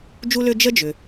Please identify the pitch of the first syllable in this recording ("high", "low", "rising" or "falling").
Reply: high